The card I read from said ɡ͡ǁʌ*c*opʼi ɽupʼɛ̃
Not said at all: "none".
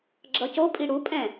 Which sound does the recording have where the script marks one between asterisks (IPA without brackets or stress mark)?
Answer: c